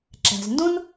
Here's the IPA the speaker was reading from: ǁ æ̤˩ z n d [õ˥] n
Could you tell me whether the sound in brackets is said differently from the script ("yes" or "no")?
no